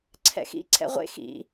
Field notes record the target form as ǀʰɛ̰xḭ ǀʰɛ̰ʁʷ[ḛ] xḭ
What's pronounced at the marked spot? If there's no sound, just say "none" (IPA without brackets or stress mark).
ḛ